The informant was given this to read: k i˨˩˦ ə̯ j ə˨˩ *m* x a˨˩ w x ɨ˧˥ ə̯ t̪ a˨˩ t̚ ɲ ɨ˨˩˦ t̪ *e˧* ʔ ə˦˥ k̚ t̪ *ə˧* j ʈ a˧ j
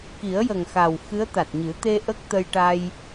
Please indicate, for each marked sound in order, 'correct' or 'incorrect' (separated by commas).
incorrect, correct, correct